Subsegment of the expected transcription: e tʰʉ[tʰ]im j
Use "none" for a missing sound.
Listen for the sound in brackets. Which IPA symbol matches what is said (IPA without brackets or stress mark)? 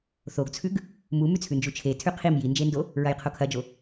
qʰ